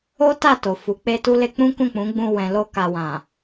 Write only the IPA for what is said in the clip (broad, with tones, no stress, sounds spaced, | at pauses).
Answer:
o˦ t a˦˨ t o˨ f u˨˦ k͡p e˦ t u˦ l e˧ k͡p ũ˦ k ũ˦˨ k͡p ũ˨˦ ɡ͡b ũ˧ w ɛ̃˨ l o˧ k a˨ w ã˨